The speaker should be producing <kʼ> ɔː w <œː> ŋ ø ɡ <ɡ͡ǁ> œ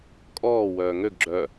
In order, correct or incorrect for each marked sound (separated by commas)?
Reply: correct, correct, correct